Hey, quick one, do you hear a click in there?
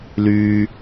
no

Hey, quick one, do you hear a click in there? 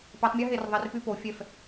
no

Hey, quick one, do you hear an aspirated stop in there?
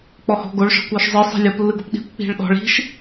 no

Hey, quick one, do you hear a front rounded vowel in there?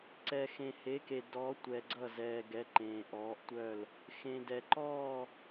yes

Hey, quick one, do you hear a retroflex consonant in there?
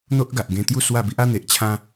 no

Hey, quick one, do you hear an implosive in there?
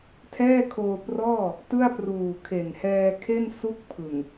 no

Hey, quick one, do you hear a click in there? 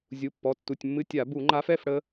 yes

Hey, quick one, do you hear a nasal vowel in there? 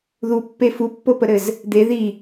no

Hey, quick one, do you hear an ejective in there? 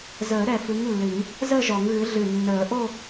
no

